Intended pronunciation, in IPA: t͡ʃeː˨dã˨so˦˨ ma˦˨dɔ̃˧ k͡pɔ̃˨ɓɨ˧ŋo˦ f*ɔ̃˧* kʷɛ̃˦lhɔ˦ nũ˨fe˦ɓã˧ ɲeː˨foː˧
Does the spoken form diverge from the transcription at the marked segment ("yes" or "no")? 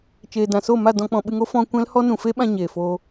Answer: no